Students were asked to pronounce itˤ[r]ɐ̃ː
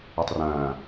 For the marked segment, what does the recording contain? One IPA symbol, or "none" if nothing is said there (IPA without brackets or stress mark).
r